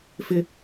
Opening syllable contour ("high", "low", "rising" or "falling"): high